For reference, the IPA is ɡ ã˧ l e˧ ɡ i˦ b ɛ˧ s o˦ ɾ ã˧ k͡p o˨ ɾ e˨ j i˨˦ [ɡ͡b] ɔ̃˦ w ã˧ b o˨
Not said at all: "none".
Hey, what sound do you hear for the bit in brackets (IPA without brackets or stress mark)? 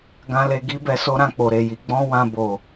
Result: ɡ͡b